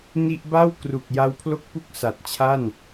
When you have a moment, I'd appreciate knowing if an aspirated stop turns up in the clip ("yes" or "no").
yes